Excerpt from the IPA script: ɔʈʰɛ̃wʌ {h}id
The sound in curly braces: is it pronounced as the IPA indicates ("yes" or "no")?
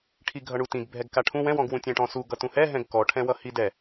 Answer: yes